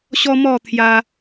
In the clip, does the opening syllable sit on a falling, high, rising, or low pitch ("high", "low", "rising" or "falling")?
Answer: high